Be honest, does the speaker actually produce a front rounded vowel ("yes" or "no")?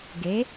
no